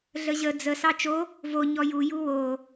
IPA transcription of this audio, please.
ɮ ə ʑ ə d͡z ə s ɑ t͡ʃ o | v o ɲ ɔ j u j u w o

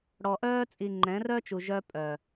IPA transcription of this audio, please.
ɽ ɔ˨ ʔ œː˦ t͡sʼ i˨ ŋ͡ǃ ɛ̃˨˦ r œ˦ t͡ʃ u˨ ʒ œ˦ pʼ œ˨

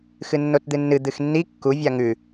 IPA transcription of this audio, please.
x ɨ nː o t d̪ ɨ nː ɨ d̪ ɨ x nː i kː u vʲ a ŋ ʉ

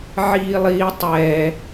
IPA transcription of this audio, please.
ʕ iː lˠ iː tˤ ɛ

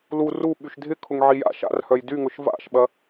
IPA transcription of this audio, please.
l u r u ɓ y ʃ dʱ ɪ kʰ ʊ ŋ ʕ i j a̰ ʃ a̰ r h œ j d y ŋ ʊ ʃ v a̰ ʃ ɓ ɐ

